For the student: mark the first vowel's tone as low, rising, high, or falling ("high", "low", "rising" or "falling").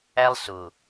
high